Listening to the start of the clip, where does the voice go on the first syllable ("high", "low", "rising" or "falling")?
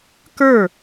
falling